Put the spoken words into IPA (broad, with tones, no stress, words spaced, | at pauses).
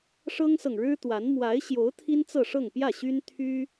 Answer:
ʂɤ˥ŋsɤ˨ŋɻɻ̩˥t̪wa˧˥n mwa˧˥ɪ̯ɕjo˧˥ʊ̯ t̪ʰi˥nt͡sɤ˥˧ʂɤ˥˧ŋ pjä˥˩ɕy˥n t̪ʰy˥